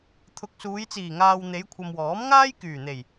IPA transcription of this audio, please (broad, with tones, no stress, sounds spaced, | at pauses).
t̪ʰ ʊ˨˥ k̚ s uː˨˧ j t͡s iː˨˩ ŋ aː˨ w n̪ e˨˧ j kʷʰ ɐ˨ m w ɔː˨˥ m ŋ aː˥ j k yː˨˩ n̪ e˨˩ j